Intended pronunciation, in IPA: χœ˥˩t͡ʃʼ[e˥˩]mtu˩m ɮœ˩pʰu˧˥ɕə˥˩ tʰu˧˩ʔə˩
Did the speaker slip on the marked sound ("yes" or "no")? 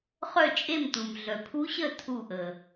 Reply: no